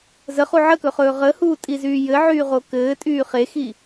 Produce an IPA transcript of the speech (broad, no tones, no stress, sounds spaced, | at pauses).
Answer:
z ə χ u ʕ ə k ɵ χ ɵː ʁ ə h uː tʼ i z yː j ɘ ʕ yː ʁ o k ɘː tʼ yː χ e x i